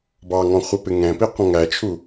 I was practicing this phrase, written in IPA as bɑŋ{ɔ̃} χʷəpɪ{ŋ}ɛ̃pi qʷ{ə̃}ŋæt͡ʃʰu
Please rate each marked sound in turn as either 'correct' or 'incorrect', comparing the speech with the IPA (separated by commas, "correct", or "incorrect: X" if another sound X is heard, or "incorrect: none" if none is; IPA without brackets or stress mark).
correct, correct, correct